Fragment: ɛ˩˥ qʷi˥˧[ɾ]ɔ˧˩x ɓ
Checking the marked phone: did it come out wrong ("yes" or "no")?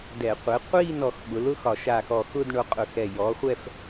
yes